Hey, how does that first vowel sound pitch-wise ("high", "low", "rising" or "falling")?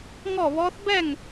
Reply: falling